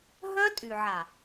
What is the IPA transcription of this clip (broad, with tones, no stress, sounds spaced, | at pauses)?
ɦ œ˦ tʼ y˨ ʕ a˨